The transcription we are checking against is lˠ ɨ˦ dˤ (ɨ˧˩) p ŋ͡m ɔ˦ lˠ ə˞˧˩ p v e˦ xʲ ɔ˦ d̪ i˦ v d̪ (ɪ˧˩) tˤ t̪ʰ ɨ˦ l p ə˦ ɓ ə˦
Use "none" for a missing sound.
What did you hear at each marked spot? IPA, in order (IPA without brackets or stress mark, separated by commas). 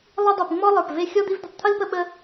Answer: i˧˩, ə˧˩